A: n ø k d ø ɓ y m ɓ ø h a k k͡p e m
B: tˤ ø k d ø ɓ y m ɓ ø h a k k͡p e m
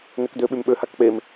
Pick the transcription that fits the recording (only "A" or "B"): A